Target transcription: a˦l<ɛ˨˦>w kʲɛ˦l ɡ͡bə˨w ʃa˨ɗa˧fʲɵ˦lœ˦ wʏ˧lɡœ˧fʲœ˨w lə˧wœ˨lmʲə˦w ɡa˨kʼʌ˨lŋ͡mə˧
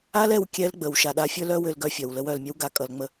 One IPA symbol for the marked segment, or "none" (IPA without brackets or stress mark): ɛ˧